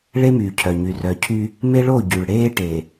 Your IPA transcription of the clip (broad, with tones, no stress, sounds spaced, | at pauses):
ɭ e˦ m yː˨ cʰ œ˨ ɲ y˨ r œ˨ cʰ y˦ | m e˦ ɭ o˦˨ ɟ y˨ ɭ ɽ eː˦ ʈ e˨